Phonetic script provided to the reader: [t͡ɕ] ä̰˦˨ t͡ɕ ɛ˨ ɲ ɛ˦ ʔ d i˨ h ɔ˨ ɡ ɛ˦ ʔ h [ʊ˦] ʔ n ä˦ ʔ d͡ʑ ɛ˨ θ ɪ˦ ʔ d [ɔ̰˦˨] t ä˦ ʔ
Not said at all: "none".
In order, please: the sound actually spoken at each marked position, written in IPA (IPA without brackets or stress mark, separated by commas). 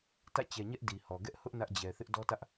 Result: t, ʊ˦, ɔ˦